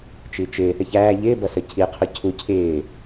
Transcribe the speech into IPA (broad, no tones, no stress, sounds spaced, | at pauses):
t͡ʃ i t͡ʃ ɪː θ ɪ ç æː ʎ ɪː b ʌ s ə cʰ i qʰ ʊ cʰ u cʰ ɪː